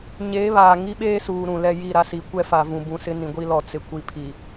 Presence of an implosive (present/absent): present